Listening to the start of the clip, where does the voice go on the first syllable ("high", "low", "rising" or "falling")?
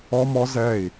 high